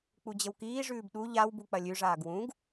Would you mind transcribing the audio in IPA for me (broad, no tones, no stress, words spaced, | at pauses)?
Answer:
k͡pud͡ʑəwkiːʐʉːb ɗu ʎawbu k͡pɐlʲʉʐaːɡ wũɡ